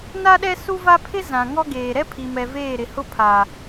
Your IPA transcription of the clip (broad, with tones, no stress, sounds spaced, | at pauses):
n a˦ ɗ ɛ˦ s u˦ v a˦ pʰ ɪ˦ z ã˨ ŋ ɔ˦ ɡ eː˨ ɾ ɛ˦ pʰ i˨ m ɛ˨ v eː˦˨ ɾ ɪ˨ h ʊ˦ pʰ aː˨